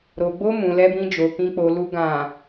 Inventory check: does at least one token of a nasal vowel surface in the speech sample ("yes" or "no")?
yes